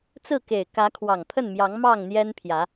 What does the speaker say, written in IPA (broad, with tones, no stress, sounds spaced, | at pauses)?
t͡s ɹ̩˥˨ k e˨˩ ɪ̯ k ä˨˦ kʰ w ɑ˨˩ ŋ pʰ ə˥˨ n m j ɑ˨˦ ŋ m ɑ˥˨ ŋ n̪ j ɛ˦ n pʰ j ä˨˦